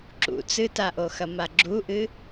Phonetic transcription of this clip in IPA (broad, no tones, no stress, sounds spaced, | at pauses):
ǁ ṵ t͡s ɨ t a ʔ o x ɐ m a ɡ͡ǁ u ʔ ɨ